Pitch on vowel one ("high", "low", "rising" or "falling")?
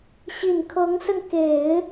low